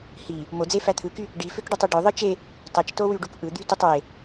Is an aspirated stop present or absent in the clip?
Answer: present